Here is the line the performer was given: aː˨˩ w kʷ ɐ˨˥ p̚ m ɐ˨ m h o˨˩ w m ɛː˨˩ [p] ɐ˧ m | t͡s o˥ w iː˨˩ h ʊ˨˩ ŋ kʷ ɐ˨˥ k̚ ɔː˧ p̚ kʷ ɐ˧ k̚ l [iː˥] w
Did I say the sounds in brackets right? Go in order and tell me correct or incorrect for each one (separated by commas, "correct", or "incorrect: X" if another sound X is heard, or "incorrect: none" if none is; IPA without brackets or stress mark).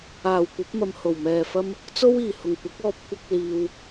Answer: incorrect: f, incorrect: iː˨